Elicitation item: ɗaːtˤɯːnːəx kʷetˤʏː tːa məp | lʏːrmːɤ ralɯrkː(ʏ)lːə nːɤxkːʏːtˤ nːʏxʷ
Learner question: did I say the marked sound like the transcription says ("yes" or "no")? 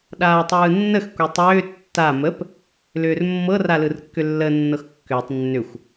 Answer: yes